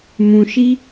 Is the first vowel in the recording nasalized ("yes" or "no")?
yes